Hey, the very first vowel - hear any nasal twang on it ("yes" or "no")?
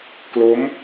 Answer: no